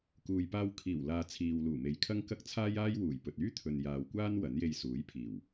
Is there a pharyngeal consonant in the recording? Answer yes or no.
no